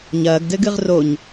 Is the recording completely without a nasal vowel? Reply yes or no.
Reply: yes